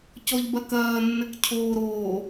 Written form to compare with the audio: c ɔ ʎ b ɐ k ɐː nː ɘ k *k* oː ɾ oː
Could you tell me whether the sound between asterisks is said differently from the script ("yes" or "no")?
yes